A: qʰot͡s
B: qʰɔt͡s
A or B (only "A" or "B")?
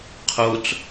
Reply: A